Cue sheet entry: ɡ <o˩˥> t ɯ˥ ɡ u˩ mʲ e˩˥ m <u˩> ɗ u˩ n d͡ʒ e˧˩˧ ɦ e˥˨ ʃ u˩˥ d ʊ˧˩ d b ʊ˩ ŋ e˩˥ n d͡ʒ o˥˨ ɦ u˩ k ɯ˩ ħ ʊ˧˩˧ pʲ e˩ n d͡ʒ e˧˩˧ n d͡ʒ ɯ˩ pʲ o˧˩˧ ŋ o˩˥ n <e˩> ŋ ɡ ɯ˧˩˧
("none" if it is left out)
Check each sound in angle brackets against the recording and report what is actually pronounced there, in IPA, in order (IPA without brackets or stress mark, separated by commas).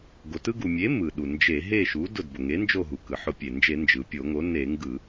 o˩, ɯ˩, e˧˩˧